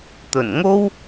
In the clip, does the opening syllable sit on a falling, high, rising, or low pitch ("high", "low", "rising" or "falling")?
low